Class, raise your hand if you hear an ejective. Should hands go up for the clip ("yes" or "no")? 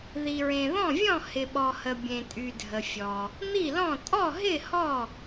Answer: yes